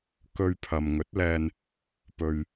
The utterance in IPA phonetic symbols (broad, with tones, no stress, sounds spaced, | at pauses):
k ɵ˧ ɥ pʰ ɐ˨ m ŋ ɵ˨˥ t̚ l ɛː˧ n | p ɵ˨ ɥ